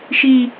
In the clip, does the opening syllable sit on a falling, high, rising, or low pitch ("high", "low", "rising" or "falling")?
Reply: low